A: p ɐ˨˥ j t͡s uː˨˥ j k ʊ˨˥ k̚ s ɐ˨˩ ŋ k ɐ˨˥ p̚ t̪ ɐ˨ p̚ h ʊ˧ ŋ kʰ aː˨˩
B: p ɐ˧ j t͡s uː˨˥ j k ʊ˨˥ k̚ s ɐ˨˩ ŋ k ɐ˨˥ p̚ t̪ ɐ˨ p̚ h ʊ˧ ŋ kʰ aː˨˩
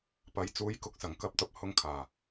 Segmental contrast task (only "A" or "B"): A